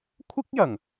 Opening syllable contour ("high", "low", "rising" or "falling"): high